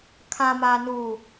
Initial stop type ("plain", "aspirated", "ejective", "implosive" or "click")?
aspirated